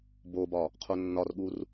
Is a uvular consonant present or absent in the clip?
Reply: present